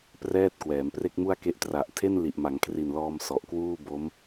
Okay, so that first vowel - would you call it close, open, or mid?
mid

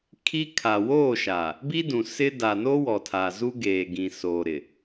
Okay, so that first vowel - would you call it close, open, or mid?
close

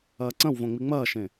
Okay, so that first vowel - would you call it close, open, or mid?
open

